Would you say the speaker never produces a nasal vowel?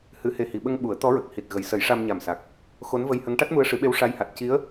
yes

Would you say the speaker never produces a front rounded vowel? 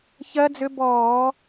no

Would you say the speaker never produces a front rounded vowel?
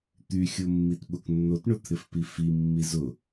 no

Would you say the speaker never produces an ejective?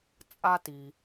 no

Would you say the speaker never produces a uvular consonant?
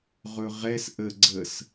no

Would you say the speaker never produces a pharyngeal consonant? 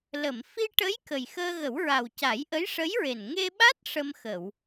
yes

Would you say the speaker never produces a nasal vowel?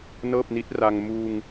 yes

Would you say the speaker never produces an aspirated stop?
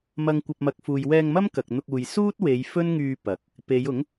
yes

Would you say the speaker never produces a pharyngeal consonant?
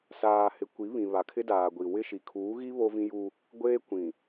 yes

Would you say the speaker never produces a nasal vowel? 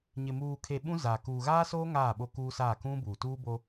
no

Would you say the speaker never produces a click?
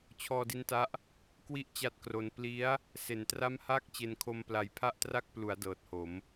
yes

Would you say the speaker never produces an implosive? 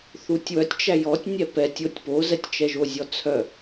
yes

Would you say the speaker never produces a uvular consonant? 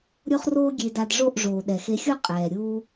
no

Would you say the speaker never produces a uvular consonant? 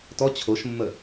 yes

